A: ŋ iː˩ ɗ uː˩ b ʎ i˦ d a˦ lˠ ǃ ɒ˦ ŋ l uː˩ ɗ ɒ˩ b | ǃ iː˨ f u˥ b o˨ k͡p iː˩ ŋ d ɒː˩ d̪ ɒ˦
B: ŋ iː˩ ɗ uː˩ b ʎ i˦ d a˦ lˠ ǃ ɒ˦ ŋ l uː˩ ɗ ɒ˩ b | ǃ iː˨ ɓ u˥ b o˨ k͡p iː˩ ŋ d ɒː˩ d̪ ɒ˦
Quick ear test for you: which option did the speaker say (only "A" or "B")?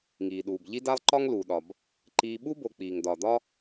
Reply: B